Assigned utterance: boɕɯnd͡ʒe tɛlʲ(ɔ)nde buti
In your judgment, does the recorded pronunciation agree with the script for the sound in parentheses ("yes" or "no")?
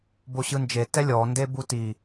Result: yes